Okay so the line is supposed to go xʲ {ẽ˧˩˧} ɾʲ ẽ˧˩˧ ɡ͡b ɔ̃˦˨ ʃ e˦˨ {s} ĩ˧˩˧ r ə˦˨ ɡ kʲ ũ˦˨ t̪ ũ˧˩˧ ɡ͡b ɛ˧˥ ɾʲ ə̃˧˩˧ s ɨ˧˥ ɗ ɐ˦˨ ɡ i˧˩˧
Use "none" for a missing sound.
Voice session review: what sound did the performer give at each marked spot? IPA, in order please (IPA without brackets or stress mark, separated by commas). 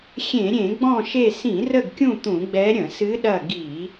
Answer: ẽ˧˩˧, s